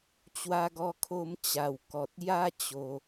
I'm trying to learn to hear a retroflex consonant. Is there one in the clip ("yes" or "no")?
no